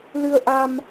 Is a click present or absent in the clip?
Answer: absent